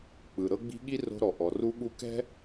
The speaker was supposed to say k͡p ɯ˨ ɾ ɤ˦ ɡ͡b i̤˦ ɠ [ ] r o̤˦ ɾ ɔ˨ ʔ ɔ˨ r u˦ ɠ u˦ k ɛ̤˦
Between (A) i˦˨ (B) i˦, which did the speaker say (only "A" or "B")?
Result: B